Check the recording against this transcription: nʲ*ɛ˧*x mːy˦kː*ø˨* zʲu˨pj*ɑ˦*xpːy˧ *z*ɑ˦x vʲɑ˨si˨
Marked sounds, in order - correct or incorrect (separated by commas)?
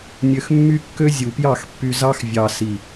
incorrect, incorrect, incorrect, correct